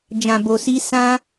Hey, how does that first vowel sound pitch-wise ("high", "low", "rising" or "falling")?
low